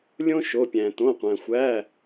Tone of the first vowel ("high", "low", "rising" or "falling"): high